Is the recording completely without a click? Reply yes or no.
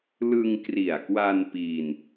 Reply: yes